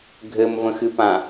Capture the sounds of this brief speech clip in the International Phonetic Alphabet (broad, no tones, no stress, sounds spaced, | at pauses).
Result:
ɡʱ ɘ m v ə̃ x ɨ p ã